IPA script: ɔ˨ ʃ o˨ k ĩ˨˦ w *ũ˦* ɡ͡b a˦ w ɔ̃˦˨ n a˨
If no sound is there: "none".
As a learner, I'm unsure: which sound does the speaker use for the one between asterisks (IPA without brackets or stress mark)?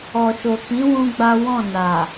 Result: ũ˦